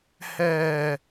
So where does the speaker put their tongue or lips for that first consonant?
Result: throat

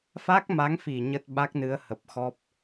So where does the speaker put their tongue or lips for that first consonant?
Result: lips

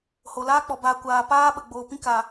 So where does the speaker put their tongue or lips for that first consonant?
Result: throat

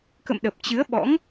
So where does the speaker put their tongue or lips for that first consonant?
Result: velum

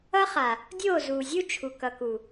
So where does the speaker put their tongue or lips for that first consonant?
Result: uvula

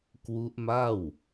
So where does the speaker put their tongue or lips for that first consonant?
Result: velum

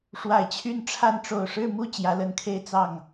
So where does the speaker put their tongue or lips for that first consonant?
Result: retroflex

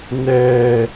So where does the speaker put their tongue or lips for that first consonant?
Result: tongue tip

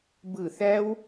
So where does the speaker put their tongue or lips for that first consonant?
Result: lips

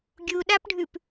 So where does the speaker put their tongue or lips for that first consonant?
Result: velum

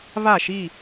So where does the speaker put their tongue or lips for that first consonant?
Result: lips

